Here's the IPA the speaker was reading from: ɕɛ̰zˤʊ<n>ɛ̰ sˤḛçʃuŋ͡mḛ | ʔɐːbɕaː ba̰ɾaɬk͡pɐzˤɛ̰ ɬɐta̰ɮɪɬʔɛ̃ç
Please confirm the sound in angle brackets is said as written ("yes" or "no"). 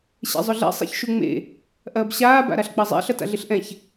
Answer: no